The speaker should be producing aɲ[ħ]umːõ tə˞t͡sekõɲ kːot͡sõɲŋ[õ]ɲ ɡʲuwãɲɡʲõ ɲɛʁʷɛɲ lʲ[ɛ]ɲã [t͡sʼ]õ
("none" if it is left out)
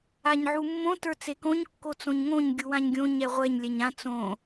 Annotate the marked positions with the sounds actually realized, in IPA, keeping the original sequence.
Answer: ʕ, õ, ɛ, t͡s

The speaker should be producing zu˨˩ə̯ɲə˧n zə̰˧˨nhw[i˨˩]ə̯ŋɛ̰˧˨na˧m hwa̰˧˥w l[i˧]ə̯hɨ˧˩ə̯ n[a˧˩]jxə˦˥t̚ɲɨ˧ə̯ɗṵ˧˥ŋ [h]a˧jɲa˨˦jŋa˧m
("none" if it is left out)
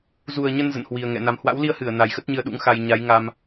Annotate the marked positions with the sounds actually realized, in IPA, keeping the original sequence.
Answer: i˨˩, i˧, a˨˩, x

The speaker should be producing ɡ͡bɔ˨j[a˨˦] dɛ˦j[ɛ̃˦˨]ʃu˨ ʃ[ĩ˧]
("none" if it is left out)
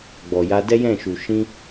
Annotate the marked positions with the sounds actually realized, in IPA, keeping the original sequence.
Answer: a˧, ɛ̃˦˨, ĩ˧

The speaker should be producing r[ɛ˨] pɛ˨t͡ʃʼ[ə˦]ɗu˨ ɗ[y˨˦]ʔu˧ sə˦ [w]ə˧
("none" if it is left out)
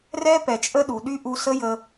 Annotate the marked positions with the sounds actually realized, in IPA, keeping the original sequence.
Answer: ɛ˦, ə˦, y˦, j

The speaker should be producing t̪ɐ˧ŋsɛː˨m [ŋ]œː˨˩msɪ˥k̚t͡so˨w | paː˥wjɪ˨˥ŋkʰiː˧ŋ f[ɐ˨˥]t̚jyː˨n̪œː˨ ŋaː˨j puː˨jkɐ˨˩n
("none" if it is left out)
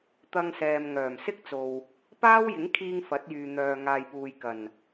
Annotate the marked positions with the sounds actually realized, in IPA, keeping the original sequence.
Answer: ŋ, ɐ˨˥

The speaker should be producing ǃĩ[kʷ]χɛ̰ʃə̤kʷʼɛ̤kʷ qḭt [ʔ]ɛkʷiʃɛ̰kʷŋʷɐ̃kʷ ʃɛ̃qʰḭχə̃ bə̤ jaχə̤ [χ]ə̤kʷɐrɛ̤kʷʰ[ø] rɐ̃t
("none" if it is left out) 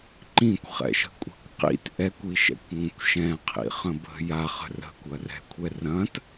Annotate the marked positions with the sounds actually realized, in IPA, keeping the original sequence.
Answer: kʷ, ʔ, r, ɛ

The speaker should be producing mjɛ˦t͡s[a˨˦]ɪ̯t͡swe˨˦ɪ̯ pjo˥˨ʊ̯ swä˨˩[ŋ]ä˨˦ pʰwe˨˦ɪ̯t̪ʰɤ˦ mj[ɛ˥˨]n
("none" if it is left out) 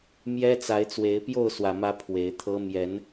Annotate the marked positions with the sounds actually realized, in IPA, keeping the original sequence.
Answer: a˨˦, m, ɛ˨˦

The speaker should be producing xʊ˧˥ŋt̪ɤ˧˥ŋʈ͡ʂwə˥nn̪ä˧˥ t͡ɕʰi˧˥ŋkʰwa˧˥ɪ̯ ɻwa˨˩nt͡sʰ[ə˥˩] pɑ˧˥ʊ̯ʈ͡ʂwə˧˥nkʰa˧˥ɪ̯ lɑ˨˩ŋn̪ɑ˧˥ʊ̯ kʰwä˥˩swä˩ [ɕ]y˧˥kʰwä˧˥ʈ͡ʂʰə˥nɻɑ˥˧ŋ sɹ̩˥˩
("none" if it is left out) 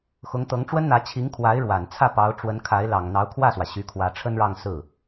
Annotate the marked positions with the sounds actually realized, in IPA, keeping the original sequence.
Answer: ä˥˩, ɕ

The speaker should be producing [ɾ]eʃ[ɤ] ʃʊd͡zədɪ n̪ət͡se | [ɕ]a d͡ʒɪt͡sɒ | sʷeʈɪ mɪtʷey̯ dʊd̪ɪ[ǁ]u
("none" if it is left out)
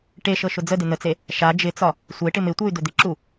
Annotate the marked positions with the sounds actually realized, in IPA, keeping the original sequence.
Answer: ʈ, ɤ, ʃ, ǁ

